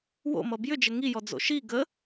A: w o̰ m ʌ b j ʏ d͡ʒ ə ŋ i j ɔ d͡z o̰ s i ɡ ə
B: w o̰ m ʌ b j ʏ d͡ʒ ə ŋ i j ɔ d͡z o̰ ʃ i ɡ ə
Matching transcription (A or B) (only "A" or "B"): B